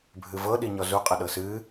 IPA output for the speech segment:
bʱɨvɤ ɗiɲɔzu qʼəɗɤsɨ

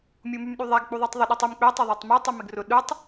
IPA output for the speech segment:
mʲumymɗyðˤaɡ k͡puðˤytˤðˤʏ ɗytˤym k͡pø tˤøðˤatˤmø tˤumɪɡrʊ ɗutˤ

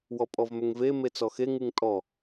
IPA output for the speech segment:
wɔpʼɔvmʏŋve met͡sɔxe ŋɨŋtʼɔ

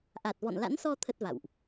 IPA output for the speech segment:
ʔa˨˩t̚vɔ̰˧˨nla̰˧˥nsɔ˧ t̪ʰə˦˥t̚va̰˧˨wʔ

